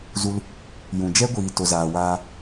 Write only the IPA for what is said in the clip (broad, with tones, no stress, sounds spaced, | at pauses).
z u˧ l | j ũ˨ d͡ʒ ɛ˦ ɡʷ iː˨ t o˨ z aː˨ w aː˧